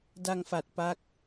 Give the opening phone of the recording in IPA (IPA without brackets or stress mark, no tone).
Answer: d